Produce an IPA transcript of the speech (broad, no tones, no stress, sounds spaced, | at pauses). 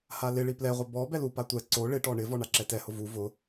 h a l ɪ ɭ i p l ɛ ʁʷ ɪ b ɔ b ɛ l u p a tʷ ɛ ǀ o ɭ ɪ ʈ ɔ ɳ ɪ v ɔ ɳ a ǁ ɛ t ɛ h ʊ v u v ʊ